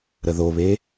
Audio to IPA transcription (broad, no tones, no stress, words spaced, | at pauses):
ɾəðoβe